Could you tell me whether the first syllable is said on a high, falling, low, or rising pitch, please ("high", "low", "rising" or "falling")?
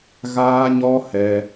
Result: high